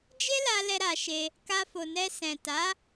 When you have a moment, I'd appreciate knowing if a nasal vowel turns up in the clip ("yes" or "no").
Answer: yes